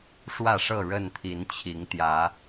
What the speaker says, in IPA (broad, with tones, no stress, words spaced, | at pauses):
ʂwä˥˨ʂɤ˥˨ɻə˥˨nt̪ʰi˨˦n t͡ɕʰi˨˦ŋt̪jä˨˦